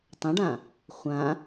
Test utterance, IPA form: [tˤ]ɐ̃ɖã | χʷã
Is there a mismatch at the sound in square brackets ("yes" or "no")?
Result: no